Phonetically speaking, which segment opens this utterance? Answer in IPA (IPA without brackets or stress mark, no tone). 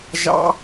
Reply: ʒ